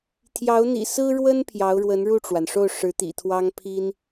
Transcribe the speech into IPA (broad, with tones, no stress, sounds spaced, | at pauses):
t̪ʰ j ɑ˧˥ ʊ̯ n̪ ḭ˨˩ s ɹ̩˥ ɻ w ə˥ n pʰ j ɑ˧˥ ʊ̯ ɻ w ə˧˥ n ɻ u˥˩ ʈ͡ʂ w a˩ n ʂ o˥˩ ʊ̯ ʂ ɻ̩˧˥ t̪ ḭ˨˩ t̪ʰ w ɑ˥ ŋ pʰ i˥ n